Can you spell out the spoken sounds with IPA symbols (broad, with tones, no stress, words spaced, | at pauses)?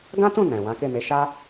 ɡã˦tũ˦˨ nɛ̃˨ wã˨˦ke˦˨me˧ ʃa˦